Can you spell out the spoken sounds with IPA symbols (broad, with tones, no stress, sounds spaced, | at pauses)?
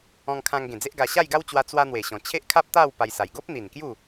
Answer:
ɔ̃˧ ŋ kʰ ã˧ ŋ ɡ ẽ˨˩ d͡z e˦ ʔ ɡ a˧ ɕ a˥˧ j ɡ a˦ w t͡ɕ w a˧ t͡s w a˦ n̪ w e˨˩ ɕ ɔ̃˨˩ t͡ɕʰ e˦ ʔ kʰ a˦ p̚ t̪ a˥˧ w p a˧ j s a˨˩ j ɡ o˦ p̚ n̪ i˨˩ n k j u˥˧